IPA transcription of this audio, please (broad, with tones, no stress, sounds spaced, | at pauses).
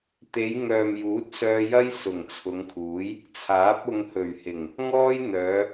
t̪ e˨˧ j ŋ œː˨ m j uː˨˥ t̚ s œː˧ j ɐ˥ j s ʊ˨˩ ŋ t͡sʰ ʊ˨˧ ŋ kʰ uː˨˥ j | t͡sʰ aː˨˥ p̚ ʊ˧ ŋ h ɵ˨˩ ɥ h ɪ˨˩ ŋ | ŋ ɔː˥ j n̪ œː˨˧